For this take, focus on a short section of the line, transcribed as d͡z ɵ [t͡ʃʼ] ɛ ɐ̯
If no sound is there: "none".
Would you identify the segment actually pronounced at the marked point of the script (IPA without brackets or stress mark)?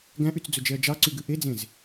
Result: d͡ʒ